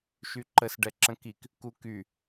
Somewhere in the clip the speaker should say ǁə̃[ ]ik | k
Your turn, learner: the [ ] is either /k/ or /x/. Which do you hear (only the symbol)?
k